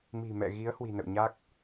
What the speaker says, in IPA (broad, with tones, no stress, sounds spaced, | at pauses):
m i̤˨˩ m ɛ̰˧˨ ɣ i˨˦ ə̯ h w i̤˨˩ n ə̰˧˨ w ɲ a˦˥ k̚